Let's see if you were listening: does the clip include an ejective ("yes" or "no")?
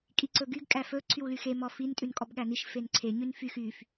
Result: yes